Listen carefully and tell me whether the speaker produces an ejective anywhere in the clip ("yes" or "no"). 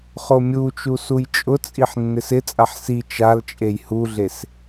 yes